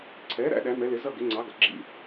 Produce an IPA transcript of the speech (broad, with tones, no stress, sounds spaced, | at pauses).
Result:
ǀʰ ɛː˨˥ ɾ æ̰˨˥ ɗ æ˨˥ m ɛ˨˥ l ɪ˨˥ z ʌ˥˧ ɡ ɪ˨˥ ŋ͡ǀ ɑ˨˥ ɡ ʌ˩ ɡ͡ǁ ḭ˥˩